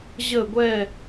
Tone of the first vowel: falling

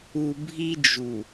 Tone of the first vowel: low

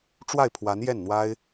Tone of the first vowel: falling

